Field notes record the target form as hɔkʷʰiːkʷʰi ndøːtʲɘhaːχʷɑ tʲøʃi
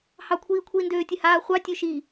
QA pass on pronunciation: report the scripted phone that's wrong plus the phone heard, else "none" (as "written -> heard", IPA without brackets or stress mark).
ɔ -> ɑ